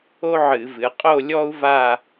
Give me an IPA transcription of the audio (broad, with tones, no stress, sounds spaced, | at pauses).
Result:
o˥ ʕ ɨ˧˩˧ v ɨ˩˧ qʼ o˥˧ lʲ ɔ˥ u̯ v a˥˧